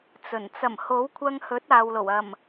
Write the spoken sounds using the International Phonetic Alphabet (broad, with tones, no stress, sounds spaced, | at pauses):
t͡s ɵ˨˩ n t͡s ɐ˨˩ m h o˨˥ w kʷʰ ɐ˧ ŋ h ɵ˨˥ t̚ aː˨ w l o˨˩ w ɐ˨˩ m